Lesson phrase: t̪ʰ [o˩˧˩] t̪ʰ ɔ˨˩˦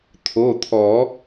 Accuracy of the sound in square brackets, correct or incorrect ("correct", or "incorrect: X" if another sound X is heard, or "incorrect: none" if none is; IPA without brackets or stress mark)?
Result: correct